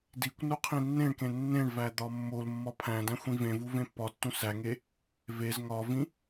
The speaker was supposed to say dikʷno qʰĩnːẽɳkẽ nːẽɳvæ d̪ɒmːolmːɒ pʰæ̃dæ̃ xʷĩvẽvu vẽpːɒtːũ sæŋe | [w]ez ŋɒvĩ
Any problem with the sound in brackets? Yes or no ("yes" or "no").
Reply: yes